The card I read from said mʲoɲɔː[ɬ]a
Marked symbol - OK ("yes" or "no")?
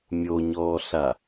yes